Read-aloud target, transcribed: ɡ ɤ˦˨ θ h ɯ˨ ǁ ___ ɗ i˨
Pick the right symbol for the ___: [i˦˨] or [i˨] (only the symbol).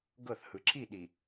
i˦˨